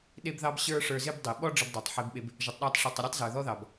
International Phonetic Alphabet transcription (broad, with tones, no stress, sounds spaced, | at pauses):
ɗ e˧ b ð ɑ˧ b ɕ ə˞˦ ʂ ə˞˧ z ɪ˦ b dˤ i˨ ɓ ɔ˦ ɖ͡ʐ ə˧ b dˤ ɑ˨ tˤ ħ e˧ b ɓ e˧ b | ʒ ɔ˨ tˤ ɗ ɑ˧ tˤ ʂ i˨ tˤ ə˧ ɾʲ o˦ tˤ z ə˞˨ ð ɔ˦ ð ɑ˨ b